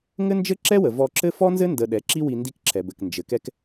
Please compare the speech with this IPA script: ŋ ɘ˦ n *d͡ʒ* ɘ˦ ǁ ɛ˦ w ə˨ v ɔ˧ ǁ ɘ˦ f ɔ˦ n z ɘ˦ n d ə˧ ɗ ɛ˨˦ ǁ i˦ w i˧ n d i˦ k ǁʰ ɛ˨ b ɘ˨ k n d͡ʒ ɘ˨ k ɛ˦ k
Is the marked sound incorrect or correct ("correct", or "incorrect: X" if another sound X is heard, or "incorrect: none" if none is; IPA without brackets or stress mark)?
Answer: correct